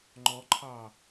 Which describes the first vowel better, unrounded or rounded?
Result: rounded